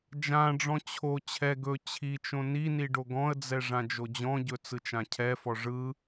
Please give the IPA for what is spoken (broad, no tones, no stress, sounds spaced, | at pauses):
d͡ʒ ã ɖ͡ʐ ɔ̃ t͡ɕʰ o t͡ɕʰ ɛ ɡ ɵ t͡ɕʰ i t͡ʃ õ n i n i ɖ o ɡ ɔ̃ ə̯ d͡z ɛ ʐ ã d͡ʒ o d͡ʑ ɔ̃ ɟ ɵ t͡s ɯ t͡ʃ ã cʰ ɛ f ɔ ʐ ɯ